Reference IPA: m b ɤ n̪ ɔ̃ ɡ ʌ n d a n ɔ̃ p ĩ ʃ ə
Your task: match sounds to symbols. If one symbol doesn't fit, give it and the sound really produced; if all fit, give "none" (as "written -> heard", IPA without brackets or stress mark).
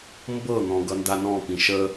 none